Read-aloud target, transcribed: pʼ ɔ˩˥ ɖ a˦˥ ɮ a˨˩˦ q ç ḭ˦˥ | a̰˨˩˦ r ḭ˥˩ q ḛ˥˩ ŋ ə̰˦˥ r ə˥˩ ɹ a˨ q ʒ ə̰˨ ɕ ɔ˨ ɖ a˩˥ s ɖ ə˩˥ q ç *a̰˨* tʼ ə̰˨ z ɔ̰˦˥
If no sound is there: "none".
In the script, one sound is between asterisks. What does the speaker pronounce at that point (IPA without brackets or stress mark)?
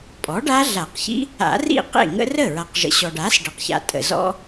a̰˨